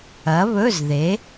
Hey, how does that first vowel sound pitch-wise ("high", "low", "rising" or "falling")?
rising